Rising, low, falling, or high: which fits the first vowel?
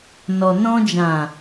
low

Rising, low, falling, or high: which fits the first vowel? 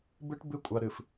high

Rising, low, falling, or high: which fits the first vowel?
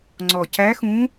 low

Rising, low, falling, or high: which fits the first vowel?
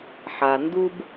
low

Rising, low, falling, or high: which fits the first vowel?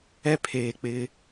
high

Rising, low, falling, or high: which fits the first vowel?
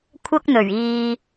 high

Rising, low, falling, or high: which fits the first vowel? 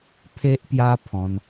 high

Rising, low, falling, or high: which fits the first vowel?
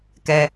low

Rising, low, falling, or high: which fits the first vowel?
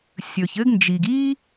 low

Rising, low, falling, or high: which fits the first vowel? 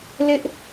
high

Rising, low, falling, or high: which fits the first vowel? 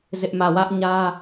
high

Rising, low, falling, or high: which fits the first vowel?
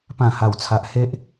falling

